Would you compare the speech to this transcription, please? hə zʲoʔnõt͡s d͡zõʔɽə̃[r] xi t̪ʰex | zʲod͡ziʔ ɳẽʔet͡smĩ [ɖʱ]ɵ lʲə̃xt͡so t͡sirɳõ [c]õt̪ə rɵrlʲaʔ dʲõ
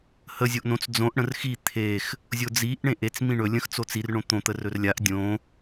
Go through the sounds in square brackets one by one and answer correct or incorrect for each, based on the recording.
correct, incorrect, incorrect

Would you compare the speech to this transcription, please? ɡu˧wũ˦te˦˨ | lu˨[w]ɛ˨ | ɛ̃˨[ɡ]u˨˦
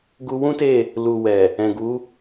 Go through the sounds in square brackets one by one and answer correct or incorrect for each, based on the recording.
correct, correct

